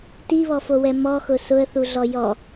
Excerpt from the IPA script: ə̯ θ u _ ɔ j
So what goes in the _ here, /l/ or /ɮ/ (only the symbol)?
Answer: ɮ